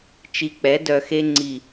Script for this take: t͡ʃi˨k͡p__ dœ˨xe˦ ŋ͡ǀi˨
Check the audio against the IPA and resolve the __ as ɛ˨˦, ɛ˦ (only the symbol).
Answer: ɛ˨˦